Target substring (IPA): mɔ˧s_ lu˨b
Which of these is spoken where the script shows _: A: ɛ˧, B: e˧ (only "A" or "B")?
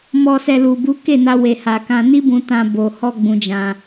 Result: A